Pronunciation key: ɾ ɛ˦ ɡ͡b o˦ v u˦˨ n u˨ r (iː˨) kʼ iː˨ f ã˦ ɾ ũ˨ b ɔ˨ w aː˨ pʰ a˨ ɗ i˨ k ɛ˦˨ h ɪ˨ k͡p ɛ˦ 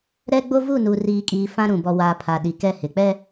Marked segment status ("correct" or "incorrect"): correct